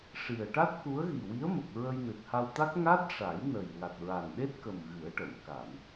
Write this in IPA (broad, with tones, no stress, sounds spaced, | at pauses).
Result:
ʂ i˨˩ ə̯ ʈ a˦˥ t̚ k u˧˥ ə̯ ɣ i˨˩ w i˧˥ ə̯ m ə˨˩ k̚ ɹ ə˧ j n ɨ˨˩ t̚ h a˧ w t̪ a˦˥ k̚ ŋ a˦˥ t̚ ʂ a˨˩˦ j n ə˨˩ j ŋ a˨˩ t̚ ɹ a˨˩ n ɗ e˦˥ t̚ k ə˨˩ m ɣ ɨ˨˩˦ ə̯ ʈ ə˨˩˨ m k a˨˩˨ m